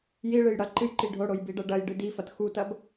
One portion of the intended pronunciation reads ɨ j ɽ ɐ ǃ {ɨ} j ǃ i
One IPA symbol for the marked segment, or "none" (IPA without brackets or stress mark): ɨ